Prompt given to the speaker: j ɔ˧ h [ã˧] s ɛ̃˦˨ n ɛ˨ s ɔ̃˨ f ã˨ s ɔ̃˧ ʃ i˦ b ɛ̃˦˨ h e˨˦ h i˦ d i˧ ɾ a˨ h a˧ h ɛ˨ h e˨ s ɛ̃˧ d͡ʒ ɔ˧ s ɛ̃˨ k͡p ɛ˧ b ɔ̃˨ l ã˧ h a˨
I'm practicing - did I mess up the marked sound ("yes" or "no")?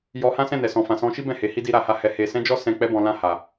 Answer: yes